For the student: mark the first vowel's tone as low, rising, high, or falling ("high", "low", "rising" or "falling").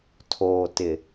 low